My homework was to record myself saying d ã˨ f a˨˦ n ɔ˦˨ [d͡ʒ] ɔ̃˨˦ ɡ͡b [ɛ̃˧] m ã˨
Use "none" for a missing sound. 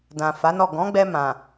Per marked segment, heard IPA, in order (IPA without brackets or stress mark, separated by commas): ɡ, ɛ˧